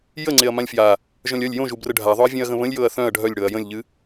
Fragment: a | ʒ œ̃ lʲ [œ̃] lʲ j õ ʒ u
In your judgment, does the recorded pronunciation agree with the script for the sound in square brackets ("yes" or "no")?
no